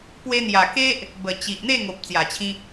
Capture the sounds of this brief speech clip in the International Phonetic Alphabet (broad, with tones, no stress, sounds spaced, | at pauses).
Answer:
p w e˧ n̪ j a˨˩ k e˦ ʔ | b ə˨˩ t͡ɕ i˨ ʔ n̪ e˥˧ ŋ o˨ p̚ t͡s j a˨˩ t͡ɕʰ ĩ˧